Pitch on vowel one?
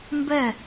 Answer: falling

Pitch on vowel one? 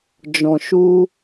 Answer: low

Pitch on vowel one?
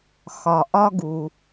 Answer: low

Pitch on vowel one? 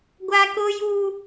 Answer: high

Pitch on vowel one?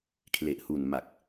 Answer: low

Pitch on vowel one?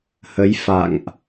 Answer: rising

